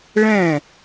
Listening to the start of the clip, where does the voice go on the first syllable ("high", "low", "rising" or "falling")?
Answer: falling